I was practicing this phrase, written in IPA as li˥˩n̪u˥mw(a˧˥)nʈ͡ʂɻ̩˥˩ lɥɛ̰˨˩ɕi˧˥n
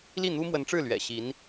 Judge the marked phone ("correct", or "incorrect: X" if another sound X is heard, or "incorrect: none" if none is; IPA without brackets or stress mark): incorrect: ə˧˥